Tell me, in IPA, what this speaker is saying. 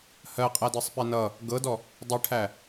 hɜqʼædɜsˤpɛ nʌ | ɡɤdɔ | dˤɛʈʰæ

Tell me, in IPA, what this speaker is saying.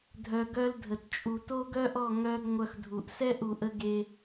dʱœ˧ɡœ˦ldʱə˨t t͡ʃʼu˨to˦ɡœ˦ʔɔ˦˨ ŋœ˦ɡ ŋʷœ˧xdʱu˨ʔ sɛ˦ʔu˨ʔə˧ ɡe˦

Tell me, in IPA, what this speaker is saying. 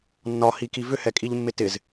nːɒhiki vʏhɛkʼiʎmːɪ tɪz

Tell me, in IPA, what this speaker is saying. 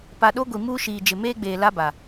pa˨ɗo˦ɡʷi˨ muː˦ʃiː˨d͡ʒɪ˨ meː˦ɡ͡beː˨ la˦ba˨

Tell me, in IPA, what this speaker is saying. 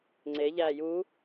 ŋ͡ǀe ʎæːju

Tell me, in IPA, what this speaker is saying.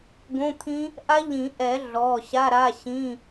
ɡõ˧˥˧t̪ʰĩ˦˥ | ʔa˦˥ʎĩ˨˩˦ʔɛ˨˩˦ ɮɔ˩˧˩ɕa˧˥˧ ɾa˧˥˧ɕĩ˧˥˧

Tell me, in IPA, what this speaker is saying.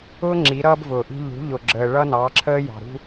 ʊː˦ ŋ͡ǁi˨˦ɾʌː˦bvʊː˨ʔi̤˦ ʎṳ˨˦ʎʊ˨ ɡ͡ǁəː˨ ɭʌ˦nɑ˨˦ǁʰəː˦ jɑ̤˨ɾṳ˦

